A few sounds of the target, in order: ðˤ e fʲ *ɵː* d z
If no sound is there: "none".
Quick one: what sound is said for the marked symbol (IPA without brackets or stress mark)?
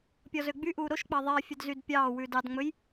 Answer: ɵ